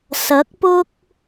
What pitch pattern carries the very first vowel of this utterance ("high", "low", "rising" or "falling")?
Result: rising